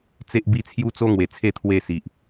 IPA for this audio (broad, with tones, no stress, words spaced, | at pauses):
t͡se˦ʔbi˦ t͡sʰju˦t͡so˦ŋwe˨˩t͡sʰe˥˧ t̪ʰwe˥˧si˨ʔ